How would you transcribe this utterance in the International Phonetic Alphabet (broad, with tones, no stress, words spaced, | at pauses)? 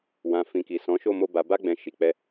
wã˨ fĩ˨ki˨ sɔ̃˨˦ʃo˦˨mo˧ ba˨ba˧ɡ͡bɛ̃˨ ʃi˨k͡pɛ˧